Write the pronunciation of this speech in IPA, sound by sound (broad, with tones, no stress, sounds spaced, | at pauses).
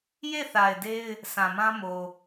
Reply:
j e˦˨ θ a˨ ɪ̯ d e˦ ɪ̯ | sʰ ã˨ m ã˦ m o˨